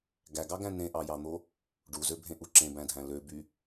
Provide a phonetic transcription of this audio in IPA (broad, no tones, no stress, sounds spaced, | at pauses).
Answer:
ɡ æ ɡ ɑ ɡ æ̃ n ẽ ʔ ɑ j ɑ n̪ o | ɖ u z ø bʱ ẽ ʔ u ǁ ẽ b æ̃ dʱ æ̃ l ø b y